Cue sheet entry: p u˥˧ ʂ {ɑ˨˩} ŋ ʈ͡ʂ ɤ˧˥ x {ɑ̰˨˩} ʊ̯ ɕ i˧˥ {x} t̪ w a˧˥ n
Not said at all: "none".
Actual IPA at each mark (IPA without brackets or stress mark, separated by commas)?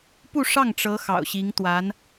ɑ˥˩, ɑ̰˨˩, ŋ